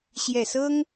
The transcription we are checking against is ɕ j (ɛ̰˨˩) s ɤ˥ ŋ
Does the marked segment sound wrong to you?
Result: yes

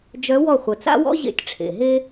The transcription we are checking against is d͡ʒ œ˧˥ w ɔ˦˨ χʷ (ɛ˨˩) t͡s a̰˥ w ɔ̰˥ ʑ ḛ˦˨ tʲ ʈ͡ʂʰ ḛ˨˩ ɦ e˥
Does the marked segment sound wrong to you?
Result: yes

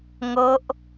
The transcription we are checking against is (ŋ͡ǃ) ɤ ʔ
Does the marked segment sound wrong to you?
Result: yes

